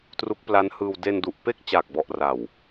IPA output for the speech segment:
t r u˦˥ k̚ p l a˦˥ n h ɯː˧ w d e˧ n d u˨˩ ʔ p e˥˩ k̚ t͡ɕ aː˨˩ k̚ b ɔ˨˩ ʔ r a˨˩ w

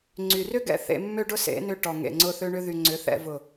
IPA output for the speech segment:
ŋ͡ǀ y˨ r ʏ˦ ɡ ɛ̰˧ θ ḛ˧ mː ø˦ ɖ ʊ˦ s ḛ˨˦ n ʏ˧ ʈ ɔ˨ ŋ ḛ˨ ŋ͡ǀ ʊ˧ θ ø˧ ɳ ʏ˧ ð y˨ ŋ͡ǀ ʏ˨˦ θ ɛ̰˧ v ʊ˨

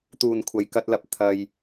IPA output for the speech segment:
t̪ uː˨˩ n kʷʰ ɐ˨˩ j k ɐ˧ t̚ l ɐ˨ p̚ t̪ʰ ɐ˨ j

